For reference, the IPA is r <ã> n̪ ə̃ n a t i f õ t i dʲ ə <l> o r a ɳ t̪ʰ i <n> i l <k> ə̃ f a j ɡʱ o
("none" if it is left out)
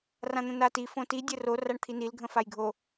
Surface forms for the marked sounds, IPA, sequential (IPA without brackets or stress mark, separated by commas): ã, r, n, ɡʱ